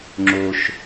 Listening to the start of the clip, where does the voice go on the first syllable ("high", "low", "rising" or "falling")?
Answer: low